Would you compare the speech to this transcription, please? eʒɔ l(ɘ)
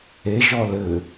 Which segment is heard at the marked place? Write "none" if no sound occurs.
ɘ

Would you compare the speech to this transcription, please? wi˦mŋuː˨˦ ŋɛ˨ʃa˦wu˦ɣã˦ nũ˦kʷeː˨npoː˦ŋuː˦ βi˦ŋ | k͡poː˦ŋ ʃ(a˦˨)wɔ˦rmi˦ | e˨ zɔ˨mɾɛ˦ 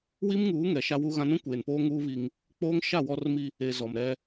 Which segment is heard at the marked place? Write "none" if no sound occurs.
a˦˨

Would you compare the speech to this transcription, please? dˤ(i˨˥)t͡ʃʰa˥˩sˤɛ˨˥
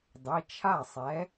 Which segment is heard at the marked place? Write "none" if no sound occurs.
i˩˧˩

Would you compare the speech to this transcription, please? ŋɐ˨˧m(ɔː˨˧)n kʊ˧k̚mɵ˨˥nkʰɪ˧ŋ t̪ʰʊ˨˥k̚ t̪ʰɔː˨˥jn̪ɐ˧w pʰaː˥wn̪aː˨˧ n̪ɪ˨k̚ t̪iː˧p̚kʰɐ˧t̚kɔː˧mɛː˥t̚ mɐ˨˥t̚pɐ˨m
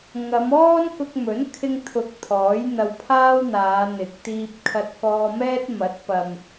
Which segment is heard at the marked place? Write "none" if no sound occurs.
ɔː˥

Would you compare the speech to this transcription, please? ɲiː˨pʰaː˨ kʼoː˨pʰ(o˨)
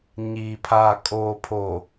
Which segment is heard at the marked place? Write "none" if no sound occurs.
o˨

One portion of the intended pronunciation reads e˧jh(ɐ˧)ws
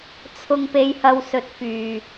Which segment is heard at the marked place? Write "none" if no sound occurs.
ɐ˧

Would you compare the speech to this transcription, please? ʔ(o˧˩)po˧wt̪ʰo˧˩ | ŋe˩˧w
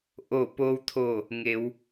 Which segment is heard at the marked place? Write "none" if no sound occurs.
o˧˩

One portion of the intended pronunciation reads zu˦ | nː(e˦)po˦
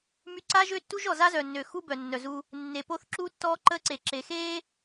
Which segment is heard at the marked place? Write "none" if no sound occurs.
e˨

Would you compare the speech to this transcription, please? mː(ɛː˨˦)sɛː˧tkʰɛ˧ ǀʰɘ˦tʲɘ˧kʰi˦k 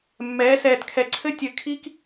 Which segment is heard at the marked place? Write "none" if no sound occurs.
ɛː˨˦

